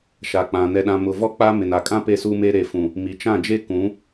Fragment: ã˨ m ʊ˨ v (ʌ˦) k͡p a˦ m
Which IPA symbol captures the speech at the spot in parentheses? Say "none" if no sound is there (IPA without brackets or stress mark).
ɔ˦